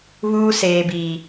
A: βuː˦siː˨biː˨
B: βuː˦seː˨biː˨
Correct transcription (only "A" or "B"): B